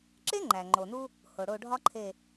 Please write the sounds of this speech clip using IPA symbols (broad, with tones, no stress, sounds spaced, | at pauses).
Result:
ǁ e˥ ŋ͡ǃ æ˩ ŋ͡ǃ o˩ n u˥ | h o˩ ɽ o˦˨ ɖʱ ɒ˥ ǃʰ e˦˨